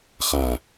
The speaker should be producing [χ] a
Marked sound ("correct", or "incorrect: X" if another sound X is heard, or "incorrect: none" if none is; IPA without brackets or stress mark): correct